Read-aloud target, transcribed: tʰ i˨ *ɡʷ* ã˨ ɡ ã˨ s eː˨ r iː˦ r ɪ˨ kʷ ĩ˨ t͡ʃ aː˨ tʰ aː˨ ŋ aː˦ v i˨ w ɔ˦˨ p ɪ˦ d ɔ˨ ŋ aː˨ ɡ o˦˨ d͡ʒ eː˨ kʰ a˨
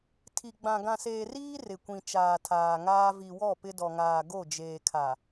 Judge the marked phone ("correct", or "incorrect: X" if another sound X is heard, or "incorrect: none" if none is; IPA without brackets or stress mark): incorrect: ɡ͡b